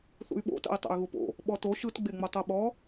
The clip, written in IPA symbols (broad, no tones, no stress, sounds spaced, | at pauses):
θ ṵ y̯ ɓ o̰ t a̰ i̯ tˤ a̰ y̯ ɣ u p o̰ | ɓ ɔ t o ʃ ɯ t ɡ͡b e ŋ͡m ɤ tˤ ɤ ɓ ɔ